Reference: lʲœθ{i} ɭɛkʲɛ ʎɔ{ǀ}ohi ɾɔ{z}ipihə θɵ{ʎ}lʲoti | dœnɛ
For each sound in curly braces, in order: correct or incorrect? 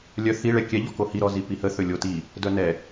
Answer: correct, incorrect, correct, incorrect

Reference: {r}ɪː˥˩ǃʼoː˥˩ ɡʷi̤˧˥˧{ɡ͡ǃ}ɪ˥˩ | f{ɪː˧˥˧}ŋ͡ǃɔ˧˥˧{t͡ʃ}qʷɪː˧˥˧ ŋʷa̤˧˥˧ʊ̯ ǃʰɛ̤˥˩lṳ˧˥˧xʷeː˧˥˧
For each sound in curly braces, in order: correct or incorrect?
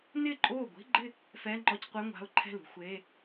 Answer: incorrect, correct, incorrect, incorrect

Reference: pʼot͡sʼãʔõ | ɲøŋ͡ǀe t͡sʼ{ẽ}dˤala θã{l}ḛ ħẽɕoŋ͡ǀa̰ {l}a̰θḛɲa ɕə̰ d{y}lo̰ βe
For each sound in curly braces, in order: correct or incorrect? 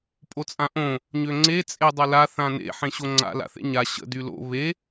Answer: incorrect, incorrect, correct, correct

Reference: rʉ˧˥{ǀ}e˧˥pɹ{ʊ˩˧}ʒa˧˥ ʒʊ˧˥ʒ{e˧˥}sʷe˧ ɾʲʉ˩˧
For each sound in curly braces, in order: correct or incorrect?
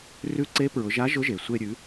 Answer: correct, correct, incorrect

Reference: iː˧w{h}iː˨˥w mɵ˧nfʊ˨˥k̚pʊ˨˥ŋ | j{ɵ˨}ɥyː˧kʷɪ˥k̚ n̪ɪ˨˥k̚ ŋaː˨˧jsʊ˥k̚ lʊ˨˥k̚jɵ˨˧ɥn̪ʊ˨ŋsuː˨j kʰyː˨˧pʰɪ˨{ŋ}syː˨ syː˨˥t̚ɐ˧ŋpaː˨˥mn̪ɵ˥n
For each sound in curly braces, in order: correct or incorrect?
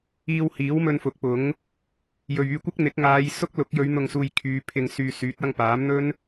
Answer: correct, correct, correct

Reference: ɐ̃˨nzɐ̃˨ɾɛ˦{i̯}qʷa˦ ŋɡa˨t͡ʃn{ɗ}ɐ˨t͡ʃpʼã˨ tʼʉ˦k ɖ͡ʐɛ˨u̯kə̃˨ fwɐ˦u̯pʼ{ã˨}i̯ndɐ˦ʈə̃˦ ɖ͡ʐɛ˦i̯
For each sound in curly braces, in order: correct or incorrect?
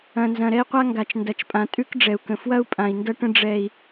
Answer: correct, incorrect, correct

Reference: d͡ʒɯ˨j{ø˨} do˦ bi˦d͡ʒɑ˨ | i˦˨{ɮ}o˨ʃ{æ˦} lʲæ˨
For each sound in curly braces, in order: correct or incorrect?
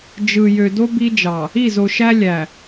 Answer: correct, incorrect, correct

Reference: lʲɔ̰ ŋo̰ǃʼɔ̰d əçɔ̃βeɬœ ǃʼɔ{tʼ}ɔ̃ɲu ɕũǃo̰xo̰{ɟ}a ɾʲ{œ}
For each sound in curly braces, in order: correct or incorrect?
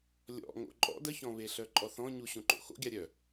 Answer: incorrect, incorrect, correct

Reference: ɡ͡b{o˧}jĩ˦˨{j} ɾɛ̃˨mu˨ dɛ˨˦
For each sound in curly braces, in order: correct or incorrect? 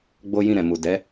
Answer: incorrect, incorrect

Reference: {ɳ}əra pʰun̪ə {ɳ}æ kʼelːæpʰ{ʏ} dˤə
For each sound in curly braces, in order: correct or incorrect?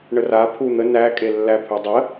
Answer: correct, incorrect, correct

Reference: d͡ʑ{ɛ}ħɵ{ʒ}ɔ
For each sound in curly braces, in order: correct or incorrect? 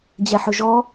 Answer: correct, correct

